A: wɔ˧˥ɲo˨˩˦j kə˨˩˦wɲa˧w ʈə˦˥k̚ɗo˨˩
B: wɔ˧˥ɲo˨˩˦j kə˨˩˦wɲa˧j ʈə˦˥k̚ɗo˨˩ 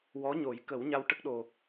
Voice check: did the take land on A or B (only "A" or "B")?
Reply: A